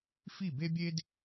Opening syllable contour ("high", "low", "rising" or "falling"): falling